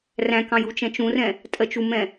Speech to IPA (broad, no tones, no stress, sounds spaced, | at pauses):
r æ̃ k ɑ̃ j u t͡ʃ ɛ̃ t͡ʃ ũ r ɛ̃ | tʼ ɜ t͡ʃ u m ɛ̃